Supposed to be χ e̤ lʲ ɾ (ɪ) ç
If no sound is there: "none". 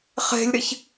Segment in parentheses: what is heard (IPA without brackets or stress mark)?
ɪ